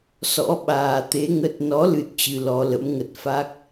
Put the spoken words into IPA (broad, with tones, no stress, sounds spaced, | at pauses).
s ɔ̰˧˥ ɓ aː˨˩ t̪ e˨˦ ŋ ə˦˥ t̚ n ɔ˨˦ l ɨ˦˥ t̚ t͡ɕ ɨ˧ l ɔ˨˦ l ə̰˧˥ m ŋ ə˨˩ t̚ f a˦˥ k̚